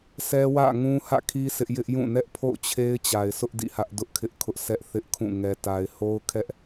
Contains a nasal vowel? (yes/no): yes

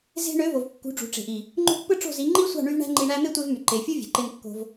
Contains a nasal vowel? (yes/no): no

